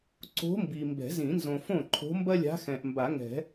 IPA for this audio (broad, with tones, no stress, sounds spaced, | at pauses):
ǀ o̤˧˥ m b i˨ m b ɛ̤˨˩˦ z ĩ˨˩˦ n z õ˨ f õ˥˩ ǃʰ o̤˧˥ m b ɐ˥ lʲ a̤˧˥ x ɛ̃˨ ʔ m b a˨˩˦ ŋ ɛ̤˨˩˦